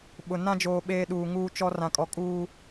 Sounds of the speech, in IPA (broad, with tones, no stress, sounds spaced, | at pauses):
ɓ ʊ˨ n ã˦ d͡ʒ oː˨ ɓ eː˦ ɗ uː˨ ŋ uː˦ t͡ʃ ɔ˦ r ã˨ kʼ ɔ˨ kʼ uː˦